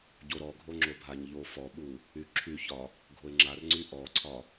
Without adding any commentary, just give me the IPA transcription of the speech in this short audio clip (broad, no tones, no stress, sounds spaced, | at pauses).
ɟ o ɾ ɔ ɡʱ o ŋ͡ǁ o bʱ a ɲ ʎ o f ɔ ɓ u | y ǁʰ y ç ɒ | ɡʱ o ɪ̯ ŋ͡ǁ a r ŋ͡ǀ y ʔ ɔ ǀʰ ɒ